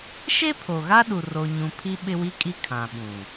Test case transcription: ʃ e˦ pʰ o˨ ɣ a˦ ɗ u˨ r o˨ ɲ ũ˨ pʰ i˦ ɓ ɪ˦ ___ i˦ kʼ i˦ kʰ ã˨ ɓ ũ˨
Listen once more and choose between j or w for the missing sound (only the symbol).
w